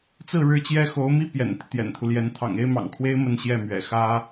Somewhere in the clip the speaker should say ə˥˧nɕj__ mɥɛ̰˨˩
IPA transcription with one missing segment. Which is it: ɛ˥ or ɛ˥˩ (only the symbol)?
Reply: ɛ˥˩